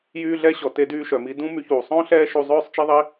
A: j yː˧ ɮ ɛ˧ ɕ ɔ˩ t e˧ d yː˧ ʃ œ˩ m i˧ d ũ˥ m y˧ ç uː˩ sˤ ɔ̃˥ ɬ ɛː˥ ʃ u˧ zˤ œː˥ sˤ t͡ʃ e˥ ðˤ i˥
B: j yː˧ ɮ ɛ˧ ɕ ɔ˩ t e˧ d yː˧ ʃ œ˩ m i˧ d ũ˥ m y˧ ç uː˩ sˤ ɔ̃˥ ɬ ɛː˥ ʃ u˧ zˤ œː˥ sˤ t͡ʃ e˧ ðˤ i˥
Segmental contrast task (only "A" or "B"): A